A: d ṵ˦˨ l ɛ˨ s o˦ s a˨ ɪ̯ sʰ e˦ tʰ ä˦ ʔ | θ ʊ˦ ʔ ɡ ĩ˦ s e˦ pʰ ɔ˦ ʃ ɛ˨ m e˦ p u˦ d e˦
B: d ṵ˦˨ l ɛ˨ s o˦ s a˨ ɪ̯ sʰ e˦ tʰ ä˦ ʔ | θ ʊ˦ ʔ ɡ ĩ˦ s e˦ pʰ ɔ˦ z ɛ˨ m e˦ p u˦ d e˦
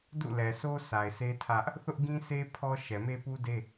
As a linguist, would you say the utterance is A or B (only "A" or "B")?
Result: A